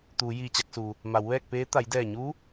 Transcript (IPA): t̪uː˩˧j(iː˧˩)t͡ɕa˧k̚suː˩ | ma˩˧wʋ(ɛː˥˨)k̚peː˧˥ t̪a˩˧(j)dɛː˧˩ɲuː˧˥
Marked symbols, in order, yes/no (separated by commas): yes, yes, yes